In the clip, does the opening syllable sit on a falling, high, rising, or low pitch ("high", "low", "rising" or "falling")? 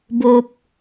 low